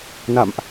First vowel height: low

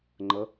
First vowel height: mid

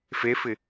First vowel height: mid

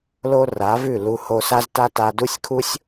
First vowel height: mid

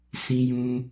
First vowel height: high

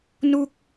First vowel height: high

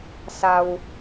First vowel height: low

